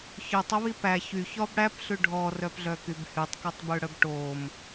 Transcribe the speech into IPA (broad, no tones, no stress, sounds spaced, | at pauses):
ç œ tˤ o β i p æ ç y ç ɔ b ɽ æ p ɬ ʉ ɖʱ ɔ r œ p ɮ œ k y b h y tˤ k œ tˤ b ʉ ɽ œ b ʈ o m